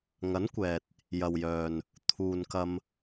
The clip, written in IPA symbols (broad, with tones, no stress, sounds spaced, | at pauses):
ŋ ɐ˨˥ n kʷ ɛː˨ t̚ | j ɐ˨ w j œː˨ n | t̪ʰ uː˨ n k ɐ˧ m